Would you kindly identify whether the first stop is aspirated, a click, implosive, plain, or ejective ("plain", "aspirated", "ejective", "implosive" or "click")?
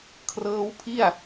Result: aspirated